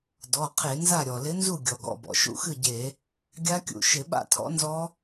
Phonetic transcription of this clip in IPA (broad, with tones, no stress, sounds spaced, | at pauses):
d ɔ˩˧˩ qʰ e˧˩˧ n z a˥˩ ɾʲ ɔ˩ l ɪ˨˥ n z u˥˩ ɡʲ ɔ˩ ɡ ɔ̰˩˧˩ b ɔ̰˩ ʃ ṵ˥˩ x ɨ˥˩ ɟ e˧˩˧ | ɡʲ a˦˥ kʲ ṵ˩˧˩ ʃ ɪ˧˩˧ ɓ a̰˥˩ tʰ ɔ̰˨˥ n z ɔ˦˥